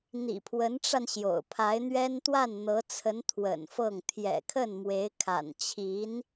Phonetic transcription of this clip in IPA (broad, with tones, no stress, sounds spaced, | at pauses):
n̪ ḭ˨˩ pʰ w ə˧˥ n ʈ͡ʂ a˧ n ɕ j o̰˨˩ ʊ̯ pʰ a˧˥ ɪ̯ n̪ ɥ ɛ˥ n t̪ w a˥˩ n n̪ ɤ˧˥ t͡sʰ ə˧˥ n t̪ʰ w ə̰˨˩ n f ɤ˥˩ ŋ t̪ʰ j ɛ̰˨˩ kʰ ə˥˩ n m w e˧˥ ɪ̯ kʰ a̰˨˩ n t͡ɕʰ i˧˥ n